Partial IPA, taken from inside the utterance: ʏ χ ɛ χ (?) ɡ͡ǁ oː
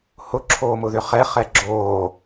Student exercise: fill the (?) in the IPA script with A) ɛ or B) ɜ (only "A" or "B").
A